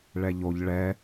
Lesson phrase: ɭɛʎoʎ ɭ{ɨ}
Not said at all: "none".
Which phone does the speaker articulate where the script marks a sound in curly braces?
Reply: ɛ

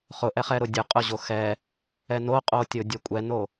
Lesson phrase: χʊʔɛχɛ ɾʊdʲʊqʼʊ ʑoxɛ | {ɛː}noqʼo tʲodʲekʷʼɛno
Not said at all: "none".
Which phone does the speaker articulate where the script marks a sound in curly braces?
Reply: ɛ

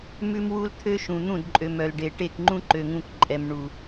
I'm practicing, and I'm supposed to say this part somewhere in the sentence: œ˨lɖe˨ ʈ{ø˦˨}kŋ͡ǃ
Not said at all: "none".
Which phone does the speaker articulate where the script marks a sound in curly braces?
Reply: e˦˨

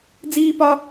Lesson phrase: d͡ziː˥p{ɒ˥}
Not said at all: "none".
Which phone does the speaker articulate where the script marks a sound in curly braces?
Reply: ɒ˥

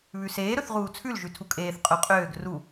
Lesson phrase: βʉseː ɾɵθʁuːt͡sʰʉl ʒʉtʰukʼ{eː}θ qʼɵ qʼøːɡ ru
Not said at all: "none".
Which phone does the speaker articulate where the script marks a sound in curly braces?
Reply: eː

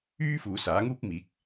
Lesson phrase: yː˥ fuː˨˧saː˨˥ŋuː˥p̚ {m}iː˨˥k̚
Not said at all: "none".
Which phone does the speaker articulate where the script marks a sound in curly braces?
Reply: m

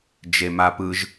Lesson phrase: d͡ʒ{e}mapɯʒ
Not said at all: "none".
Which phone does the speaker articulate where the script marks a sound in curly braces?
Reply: e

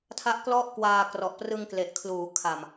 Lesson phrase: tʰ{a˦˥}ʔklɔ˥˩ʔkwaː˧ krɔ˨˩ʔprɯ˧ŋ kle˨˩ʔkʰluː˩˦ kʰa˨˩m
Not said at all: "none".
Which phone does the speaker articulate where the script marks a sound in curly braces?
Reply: a˦˥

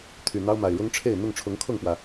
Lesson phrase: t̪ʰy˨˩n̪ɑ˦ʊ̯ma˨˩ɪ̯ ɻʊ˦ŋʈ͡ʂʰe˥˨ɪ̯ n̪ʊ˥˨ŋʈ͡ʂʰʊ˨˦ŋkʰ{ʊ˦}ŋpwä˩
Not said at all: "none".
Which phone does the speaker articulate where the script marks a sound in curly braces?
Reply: ʊ˥˨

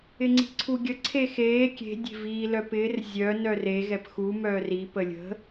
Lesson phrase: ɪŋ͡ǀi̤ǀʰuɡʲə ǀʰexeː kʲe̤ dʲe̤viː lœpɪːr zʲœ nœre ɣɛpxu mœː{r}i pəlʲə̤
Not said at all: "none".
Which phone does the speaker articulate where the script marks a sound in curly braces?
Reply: r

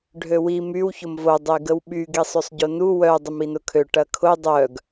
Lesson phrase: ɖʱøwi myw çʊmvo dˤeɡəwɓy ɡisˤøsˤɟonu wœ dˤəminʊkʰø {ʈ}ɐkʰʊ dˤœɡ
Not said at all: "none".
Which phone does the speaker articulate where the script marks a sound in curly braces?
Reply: ʈ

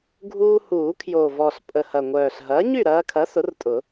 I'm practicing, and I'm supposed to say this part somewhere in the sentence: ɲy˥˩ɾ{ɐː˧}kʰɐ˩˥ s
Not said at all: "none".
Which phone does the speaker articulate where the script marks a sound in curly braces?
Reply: ɐː˧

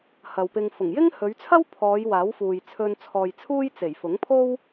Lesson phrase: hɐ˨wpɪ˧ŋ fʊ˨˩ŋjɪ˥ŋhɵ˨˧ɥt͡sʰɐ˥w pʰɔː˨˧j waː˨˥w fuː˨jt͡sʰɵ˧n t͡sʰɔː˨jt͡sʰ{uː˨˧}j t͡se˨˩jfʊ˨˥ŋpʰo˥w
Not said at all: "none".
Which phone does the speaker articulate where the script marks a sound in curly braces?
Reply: uː˥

